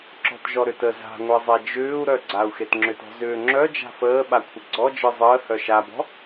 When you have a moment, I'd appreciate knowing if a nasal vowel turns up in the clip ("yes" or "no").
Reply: no